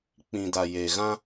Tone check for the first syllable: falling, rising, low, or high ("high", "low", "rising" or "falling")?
low